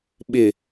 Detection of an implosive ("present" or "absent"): present